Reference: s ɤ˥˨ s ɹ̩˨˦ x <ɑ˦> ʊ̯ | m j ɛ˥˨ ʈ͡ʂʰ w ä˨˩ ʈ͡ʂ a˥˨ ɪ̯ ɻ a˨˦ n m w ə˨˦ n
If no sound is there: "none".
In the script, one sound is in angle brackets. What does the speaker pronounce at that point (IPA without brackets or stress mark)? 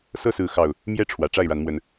ɑ˨˩